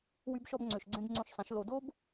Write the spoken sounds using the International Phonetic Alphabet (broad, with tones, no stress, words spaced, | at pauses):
wy˧bʃɔ˧bŋ͡ǀø˨ʃɡ͡ǀẽ˧b ŋ͡ǀõ˧ʃsˤĩ˨˦ʃ lo˧ do˦b